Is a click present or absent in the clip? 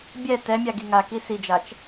absent